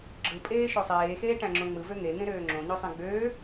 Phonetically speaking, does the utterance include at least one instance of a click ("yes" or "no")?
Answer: yes